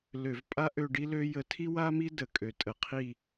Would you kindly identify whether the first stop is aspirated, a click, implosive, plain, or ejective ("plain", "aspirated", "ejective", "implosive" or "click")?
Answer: ejective